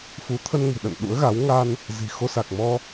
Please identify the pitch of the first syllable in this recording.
rising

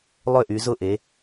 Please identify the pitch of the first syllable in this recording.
falling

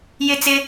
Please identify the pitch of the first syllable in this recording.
high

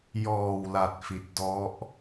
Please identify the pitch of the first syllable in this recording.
low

